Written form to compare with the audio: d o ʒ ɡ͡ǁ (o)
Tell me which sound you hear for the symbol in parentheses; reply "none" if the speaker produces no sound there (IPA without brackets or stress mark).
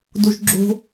o̤